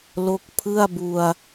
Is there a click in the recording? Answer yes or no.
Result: no